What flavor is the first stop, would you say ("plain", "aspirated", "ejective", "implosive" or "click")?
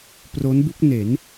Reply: plain